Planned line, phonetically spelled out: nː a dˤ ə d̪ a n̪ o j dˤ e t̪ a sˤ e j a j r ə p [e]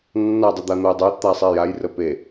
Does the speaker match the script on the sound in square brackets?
yes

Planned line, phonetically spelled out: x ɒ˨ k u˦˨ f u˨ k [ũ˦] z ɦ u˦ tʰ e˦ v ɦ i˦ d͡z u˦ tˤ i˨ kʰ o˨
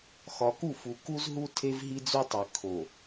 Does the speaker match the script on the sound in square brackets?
no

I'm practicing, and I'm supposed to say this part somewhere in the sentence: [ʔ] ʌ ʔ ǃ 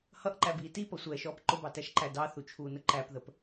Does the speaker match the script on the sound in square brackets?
no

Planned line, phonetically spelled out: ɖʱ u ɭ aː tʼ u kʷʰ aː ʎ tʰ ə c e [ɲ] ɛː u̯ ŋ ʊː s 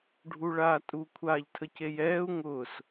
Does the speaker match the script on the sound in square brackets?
no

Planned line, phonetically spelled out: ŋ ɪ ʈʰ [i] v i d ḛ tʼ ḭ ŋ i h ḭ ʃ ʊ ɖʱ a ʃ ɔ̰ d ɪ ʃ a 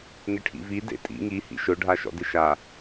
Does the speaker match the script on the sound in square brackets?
no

